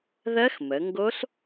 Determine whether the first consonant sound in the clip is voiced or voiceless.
voiced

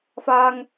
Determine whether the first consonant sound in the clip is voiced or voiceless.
voiceless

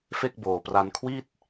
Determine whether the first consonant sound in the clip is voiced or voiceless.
voiceless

